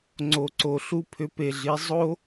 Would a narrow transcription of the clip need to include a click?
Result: yes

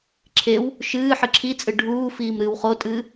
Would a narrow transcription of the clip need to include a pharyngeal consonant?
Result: yes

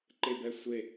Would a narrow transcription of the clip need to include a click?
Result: yes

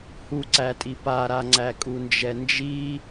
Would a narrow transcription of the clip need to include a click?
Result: yes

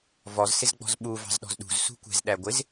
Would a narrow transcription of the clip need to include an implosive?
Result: yes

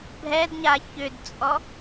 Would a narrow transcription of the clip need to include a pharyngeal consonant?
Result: no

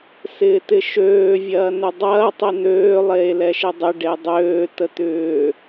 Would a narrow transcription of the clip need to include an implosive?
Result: no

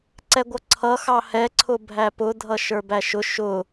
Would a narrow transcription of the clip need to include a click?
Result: yes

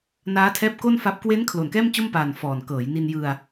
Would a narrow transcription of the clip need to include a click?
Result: no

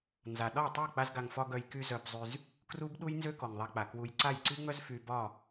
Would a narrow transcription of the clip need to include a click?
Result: yes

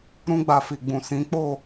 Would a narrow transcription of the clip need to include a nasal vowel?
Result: yes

